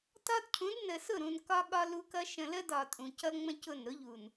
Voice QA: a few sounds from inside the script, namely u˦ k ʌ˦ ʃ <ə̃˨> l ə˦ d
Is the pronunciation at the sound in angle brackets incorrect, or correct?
correct